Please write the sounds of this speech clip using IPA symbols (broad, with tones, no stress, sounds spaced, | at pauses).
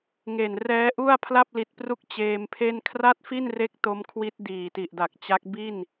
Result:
ŋ e˨˩ n r ɛː˦˥ ʔ u˥˩ a̯ pʰ l a˥˩ p̚ l i˨˩ t̚ p r u˦˥ k̚ t͡ɕ eː˧ m pʰ e˥˩ n kʰ r a˥˩ t̚ f i˥˩ n r e˦˥ k̚ t o˦˥ m kʰ w i˦˥ t̚ d iː˨˩ t i˨˩ ʔ d a˨˩ k̚ t͡ɕ a˦˥ k̚ b i˥˩ n